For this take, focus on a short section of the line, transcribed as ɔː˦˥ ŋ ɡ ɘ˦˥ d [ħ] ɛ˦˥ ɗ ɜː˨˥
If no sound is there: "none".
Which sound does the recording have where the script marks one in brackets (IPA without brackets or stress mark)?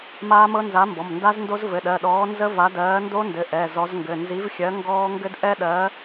ʔ